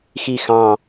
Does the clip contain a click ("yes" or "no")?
no